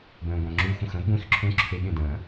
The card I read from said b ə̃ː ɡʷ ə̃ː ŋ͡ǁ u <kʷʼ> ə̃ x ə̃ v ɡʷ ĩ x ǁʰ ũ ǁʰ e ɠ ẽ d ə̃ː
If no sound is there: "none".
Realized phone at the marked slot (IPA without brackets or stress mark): xʷ